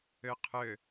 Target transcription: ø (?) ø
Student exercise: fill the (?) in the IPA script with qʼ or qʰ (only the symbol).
qʰ